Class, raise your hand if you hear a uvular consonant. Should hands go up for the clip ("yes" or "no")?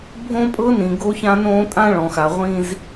yes